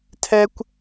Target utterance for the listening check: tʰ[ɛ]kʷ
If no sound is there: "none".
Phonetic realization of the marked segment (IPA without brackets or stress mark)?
ɛ